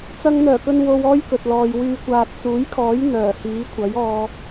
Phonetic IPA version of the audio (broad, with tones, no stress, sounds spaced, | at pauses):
t͡s ɐ˧ ŋ n̪ œː˨˩ k ɵ˧ n w o˧ w ɔː˥ j k ɵ˨ t̚ l ɔː˨ j w yː˨ kʷ aː˨ t̚ t͡s uː˨˥ j kʰ ɔː˨˥ j n̪ œː˨˩ h iː˨˥ kʷʰ ɐ˨˥ j ɔː˧